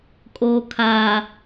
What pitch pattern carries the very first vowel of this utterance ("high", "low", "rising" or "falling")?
low